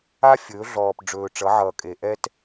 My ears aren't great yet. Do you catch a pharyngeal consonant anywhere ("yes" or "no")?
yes